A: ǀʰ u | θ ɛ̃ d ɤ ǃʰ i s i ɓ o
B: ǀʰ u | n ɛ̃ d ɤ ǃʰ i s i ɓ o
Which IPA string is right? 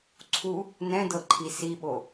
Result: B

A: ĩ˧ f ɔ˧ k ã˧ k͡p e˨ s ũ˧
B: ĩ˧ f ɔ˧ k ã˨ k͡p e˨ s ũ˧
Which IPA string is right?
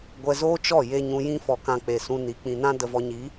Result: A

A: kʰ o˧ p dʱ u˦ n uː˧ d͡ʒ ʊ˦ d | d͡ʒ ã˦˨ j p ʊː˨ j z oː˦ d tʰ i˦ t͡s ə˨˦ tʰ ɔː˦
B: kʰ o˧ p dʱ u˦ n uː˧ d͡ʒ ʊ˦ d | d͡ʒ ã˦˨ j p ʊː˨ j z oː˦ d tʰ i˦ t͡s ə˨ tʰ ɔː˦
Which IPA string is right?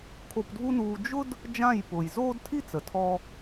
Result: B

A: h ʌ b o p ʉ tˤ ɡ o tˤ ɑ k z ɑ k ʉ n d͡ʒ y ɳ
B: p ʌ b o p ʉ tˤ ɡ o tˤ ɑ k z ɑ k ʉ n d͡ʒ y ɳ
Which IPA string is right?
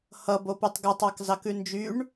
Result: A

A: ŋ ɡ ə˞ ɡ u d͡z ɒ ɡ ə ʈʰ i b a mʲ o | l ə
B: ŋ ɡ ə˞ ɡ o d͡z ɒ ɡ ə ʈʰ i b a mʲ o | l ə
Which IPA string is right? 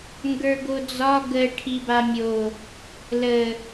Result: B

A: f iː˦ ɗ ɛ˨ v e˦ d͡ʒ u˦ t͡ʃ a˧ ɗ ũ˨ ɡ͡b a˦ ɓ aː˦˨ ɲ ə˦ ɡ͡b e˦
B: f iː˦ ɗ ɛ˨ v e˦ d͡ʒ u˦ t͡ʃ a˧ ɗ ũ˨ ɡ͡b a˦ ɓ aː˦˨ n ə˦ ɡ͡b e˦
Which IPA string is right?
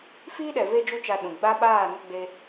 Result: B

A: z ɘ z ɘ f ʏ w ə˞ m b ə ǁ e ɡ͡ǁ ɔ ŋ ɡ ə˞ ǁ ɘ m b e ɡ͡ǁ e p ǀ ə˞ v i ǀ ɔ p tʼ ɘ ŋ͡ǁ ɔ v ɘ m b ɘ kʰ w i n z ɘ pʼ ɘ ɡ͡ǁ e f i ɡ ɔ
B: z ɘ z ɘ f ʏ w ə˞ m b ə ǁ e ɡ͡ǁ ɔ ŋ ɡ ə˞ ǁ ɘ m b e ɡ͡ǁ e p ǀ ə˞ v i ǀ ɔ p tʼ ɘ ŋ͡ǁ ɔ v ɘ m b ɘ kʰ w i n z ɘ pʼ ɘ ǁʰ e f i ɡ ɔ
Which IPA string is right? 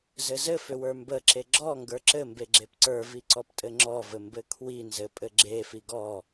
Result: A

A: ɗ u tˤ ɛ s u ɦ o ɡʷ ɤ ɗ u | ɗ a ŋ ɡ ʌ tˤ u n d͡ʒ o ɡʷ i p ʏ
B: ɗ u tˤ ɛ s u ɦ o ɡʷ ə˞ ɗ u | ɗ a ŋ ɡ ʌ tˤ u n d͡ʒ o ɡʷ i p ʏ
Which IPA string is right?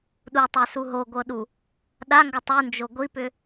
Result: A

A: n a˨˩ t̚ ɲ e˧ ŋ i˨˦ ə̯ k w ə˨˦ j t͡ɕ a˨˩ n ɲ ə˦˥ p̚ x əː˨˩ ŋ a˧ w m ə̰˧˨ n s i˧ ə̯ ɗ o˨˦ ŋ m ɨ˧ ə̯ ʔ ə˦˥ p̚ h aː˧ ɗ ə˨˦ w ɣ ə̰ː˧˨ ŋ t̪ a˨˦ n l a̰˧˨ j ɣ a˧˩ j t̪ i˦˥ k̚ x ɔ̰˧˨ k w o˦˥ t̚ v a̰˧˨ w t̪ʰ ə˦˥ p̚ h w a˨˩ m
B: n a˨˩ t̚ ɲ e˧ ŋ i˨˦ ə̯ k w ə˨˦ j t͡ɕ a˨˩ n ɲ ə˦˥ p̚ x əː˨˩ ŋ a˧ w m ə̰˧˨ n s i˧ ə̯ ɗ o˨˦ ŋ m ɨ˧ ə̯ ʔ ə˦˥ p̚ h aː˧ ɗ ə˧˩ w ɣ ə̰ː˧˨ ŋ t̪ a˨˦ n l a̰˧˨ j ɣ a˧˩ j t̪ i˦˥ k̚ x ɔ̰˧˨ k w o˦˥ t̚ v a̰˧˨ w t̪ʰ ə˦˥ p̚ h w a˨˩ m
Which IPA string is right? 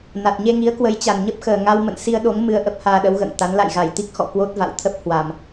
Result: A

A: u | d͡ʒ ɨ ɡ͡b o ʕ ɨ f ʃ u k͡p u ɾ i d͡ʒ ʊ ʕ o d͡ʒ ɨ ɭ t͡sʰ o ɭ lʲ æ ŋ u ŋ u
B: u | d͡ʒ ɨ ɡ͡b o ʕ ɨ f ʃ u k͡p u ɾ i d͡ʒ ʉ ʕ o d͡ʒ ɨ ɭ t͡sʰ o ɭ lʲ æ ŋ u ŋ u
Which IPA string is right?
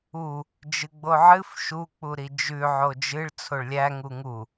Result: B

